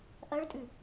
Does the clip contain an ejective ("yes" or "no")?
yes